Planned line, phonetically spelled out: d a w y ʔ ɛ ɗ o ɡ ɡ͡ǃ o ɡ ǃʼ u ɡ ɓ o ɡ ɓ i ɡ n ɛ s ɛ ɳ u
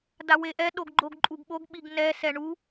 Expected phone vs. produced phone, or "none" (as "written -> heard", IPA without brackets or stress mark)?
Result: y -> e